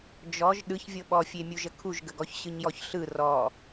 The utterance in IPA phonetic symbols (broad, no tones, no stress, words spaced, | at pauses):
d͡ʒɔʒ ɗɯçvʲɤ ɓɔfʲemʲuʒə kʰuʒɡəɡɔç ɕɯɲjɔçɬɯ rɔ